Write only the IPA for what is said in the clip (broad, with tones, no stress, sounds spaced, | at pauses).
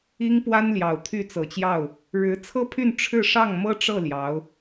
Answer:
i˥ ŋ p w a˥ n l j ɑ˨˩ ʊ̯ t̪ʰ y˥˩ t͡s ɤ˨˩ t͡ɕ j ɑ˥˩ ʊ̯ | ɻ ɻ̩˧˥ t͡sʰ ɤ˥ pʰ y˥˧ n ʈ͡ʂʰ ɻ̩˥˧ ʂ ɑ˥˩ ŋ m ɤ˥ ʈ͡ʂ ɤ˥˩ l j ɑ˧˥ ʊ̯